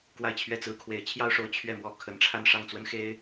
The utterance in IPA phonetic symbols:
kwa˥˧ɪ̯t͡ɕʰɥɛ˥˩t͡sɹ̩˥ kʰwe˧˥ɪ̯t͡ɕʰjɑ˥ʊ̯ʂo˧˥ʊ̯ t͡ɕʰɥɛ˥˧mwɔ˥˩ kʰə˧˥nʈ͡ʂʰa˥˧n ʂɑ˥˩ŋt͡swə˥nxe˥ɪ̯

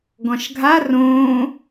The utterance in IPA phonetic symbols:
ɡɔ̃ʃɡʱa rõː

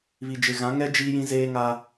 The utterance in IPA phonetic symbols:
βi˨d͡ʒɪ˨ɣã˨˦ŋɛ˦ d͡ʒiː˦jĩ˦ zeː˦ŋa˦

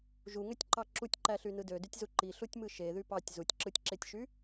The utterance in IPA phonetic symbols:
ʒuŋøtʲǃɑ ǁutʲǃæɬynɯ dødytʲzu ǃiɬutʲmɯ ʃeðy pɑtʲ zutʲǁɯtʲǁetʲʃy

